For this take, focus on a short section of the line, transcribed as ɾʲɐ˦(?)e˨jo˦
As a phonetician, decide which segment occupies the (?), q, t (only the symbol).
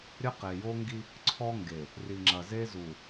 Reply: q